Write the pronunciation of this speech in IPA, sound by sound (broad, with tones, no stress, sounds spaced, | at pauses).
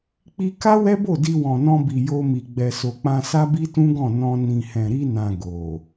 k͡p i˧ k a˦ w ɛ˦ b o˦˨ d i˧ w ɔ̃˨ n ɔ̃˧ b i˨ j o˧ m i˨ ɡ͡b ɛ˨ s o˨ k͡p ã˧ s a˦ b i˦ t ũ˦ ɡ ɔ̃˦˨ n ɔ̃˧ n ĩ˨ h ɛ̃˨ ɾ i˧ n ã˨ ɡ o˨